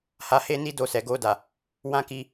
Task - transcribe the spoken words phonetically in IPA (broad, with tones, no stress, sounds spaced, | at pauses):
h a˧ h e˦ n i˦ d o˧ s ɛ˨ ɡ o˧ d a˨ | w ã˦ k i˧